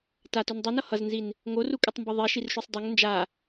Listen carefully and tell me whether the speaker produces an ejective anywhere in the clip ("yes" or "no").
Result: yes